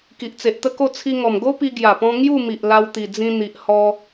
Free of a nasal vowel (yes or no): no